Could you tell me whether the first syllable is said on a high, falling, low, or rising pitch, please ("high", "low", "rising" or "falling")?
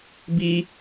high